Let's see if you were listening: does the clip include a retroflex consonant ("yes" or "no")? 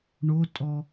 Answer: yes